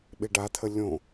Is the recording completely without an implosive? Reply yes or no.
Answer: no